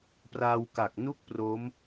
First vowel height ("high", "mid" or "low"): low